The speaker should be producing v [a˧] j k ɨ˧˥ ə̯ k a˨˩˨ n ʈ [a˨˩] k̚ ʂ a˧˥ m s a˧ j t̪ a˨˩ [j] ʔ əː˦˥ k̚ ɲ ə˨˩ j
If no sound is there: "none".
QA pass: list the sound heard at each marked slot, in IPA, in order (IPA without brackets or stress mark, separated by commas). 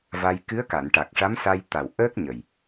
a˧, a˨˩, w